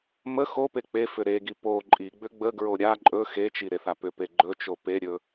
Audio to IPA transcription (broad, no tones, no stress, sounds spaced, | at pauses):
m ə x o p e k͡p e f ʏ ɾ e ɡ i p o ǃʼ i ɡ͡b ʏ ɡ͡b ə ɡ ɹ o ɾʲ a ǃʼ ɵ x e t͡ʃ i ɾ e θ a p ʏ p e ɡ͡ǃ ɵ t͡ʃ o p e ɾʲ ɵ